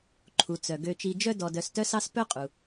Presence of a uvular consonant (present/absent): present